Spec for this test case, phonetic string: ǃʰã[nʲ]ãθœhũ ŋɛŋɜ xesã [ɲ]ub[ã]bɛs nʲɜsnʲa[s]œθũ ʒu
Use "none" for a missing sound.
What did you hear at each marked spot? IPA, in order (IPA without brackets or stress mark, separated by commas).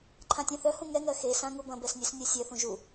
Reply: tʲ, ŋ, ɐ̃, sʲ